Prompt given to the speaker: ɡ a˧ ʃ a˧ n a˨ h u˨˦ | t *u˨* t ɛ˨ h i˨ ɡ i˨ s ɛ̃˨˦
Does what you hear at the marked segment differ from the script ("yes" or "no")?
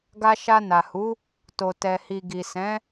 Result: yes